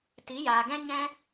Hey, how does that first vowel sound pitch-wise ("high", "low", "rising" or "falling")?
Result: rising